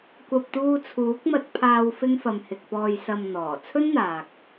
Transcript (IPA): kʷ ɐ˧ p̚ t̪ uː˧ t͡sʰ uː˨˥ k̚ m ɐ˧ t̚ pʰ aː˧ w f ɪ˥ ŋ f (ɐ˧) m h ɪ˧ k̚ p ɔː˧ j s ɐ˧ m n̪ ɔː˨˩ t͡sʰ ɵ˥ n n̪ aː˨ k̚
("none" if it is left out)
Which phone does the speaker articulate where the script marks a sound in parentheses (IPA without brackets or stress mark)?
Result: ɐ˧